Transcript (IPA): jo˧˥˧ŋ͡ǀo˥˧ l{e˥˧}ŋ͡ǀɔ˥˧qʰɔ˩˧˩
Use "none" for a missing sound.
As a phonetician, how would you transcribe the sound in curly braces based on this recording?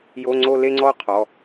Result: e˥˧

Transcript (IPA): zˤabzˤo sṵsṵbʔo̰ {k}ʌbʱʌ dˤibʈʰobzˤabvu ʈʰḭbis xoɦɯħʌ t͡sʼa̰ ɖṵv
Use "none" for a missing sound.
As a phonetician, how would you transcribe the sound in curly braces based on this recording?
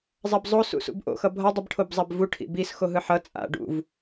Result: x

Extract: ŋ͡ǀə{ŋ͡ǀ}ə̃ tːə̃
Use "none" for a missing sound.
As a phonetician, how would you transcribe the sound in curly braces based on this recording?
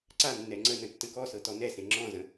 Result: n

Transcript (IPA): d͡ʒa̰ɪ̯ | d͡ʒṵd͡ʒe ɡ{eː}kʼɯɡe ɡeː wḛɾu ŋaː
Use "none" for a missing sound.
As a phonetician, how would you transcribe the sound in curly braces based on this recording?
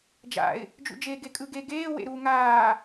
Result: e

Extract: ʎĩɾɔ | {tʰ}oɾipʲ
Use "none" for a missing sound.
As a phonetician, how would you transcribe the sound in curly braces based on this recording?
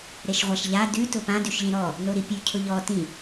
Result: n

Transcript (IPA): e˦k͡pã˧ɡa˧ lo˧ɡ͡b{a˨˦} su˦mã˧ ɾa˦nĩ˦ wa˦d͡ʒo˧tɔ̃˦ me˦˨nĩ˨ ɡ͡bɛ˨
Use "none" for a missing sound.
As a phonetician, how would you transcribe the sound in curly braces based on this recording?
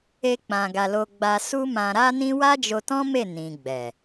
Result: a˧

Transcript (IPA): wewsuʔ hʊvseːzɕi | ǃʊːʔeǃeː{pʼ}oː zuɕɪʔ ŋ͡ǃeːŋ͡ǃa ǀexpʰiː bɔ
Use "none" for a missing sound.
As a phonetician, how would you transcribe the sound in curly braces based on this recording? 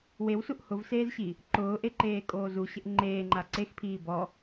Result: kʼ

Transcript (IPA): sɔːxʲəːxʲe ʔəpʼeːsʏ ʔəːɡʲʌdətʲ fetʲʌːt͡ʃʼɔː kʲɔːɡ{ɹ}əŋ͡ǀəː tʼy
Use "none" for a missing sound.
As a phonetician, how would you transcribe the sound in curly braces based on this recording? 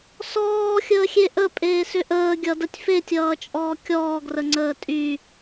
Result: r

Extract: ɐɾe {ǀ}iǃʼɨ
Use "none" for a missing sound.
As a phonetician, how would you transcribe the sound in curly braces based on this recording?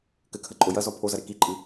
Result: k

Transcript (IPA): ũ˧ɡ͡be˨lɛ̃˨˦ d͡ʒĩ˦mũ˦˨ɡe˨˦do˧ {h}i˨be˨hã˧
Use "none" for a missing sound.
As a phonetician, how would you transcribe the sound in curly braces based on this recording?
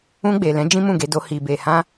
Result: h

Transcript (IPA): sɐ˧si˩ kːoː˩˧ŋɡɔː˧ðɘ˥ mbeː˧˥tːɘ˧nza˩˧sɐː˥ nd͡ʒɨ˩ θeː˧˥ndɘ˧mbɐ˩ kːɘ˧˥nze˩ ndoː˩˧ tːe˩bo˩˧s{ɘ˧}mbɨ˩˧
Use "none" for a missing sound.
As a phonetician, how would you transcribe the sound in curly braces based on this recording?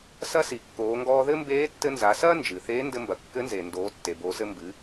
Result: ɘ˧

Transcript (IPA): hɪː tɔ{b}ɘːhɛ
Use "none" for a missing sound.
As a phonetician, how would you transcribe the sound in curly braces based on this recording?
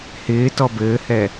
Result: b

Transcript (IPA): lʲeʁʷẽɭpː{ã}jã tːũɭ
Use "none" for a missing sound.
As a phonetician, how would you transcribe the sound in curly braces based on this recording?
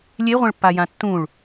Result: a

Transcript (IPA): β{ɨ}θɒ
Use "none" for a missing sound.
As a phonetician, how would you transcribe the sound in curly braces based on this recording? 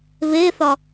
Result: e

